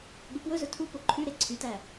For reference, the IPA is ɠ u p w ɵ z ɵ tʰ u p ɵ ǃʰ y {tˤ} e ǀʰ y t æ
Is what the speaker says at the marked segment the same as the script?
no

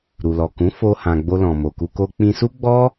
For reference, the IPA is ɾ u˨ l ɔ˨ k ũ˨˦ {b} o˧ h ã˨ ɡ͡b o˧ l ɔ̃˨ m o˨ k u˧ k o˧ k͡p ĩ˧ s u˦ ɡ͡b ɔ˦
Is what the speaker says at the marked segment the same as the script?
no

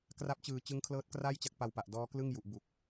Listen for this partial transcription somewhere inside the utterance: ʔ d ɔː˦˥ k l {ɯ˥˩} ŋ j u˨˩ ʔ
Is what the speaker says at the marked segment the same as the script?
yes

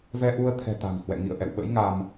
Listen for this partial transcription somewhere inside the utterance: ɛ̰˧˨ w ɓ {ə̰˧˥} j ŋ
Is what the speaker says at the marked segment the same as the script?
yes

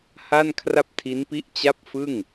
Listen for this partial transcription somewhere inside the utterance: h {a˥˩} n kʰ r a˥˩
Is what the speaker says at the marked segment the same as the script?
yes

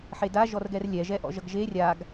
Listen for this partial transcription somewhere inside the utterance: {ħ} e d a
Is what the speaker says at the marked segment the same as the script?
yes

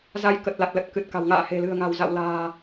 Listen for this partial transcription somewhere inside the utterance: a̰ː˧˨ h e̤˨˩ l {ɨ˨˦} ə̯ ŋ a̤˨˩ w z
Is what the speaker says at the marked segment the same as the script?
no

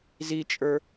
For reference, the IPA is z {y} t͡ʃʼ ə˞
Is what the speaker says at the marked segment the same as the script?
no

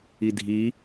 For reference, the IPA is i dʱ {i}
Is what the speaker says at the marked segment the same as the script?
yes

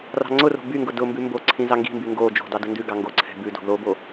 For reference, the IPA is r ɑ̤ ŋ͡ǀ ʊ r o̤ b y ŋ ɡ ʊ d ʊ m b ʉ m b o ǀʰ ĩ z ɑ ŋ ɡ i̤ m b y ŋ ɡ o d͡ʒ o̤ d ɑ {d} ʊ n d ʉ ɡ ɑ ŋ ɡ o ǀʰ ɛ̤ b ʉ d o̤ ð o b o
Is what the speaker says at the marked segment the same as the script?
yes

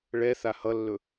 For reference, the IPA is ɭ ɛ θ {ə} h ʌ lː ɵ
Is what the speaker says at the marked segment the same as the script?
no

